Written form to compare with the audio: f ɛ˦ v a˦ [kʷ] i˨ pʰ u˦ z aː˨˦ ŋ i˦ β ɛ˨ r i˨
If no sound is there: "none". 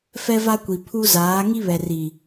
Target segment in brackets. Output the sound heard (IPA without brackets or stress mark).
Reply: kʷ